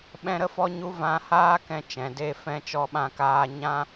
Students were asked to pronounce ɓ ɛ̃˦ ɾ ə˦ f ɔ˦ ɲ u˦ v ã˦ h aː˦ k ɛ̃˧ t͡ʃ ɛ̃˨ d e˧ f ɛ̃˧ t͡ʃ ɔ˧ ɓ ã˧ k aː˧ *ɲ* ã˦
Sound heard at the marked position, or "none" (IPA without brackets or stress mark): ɲ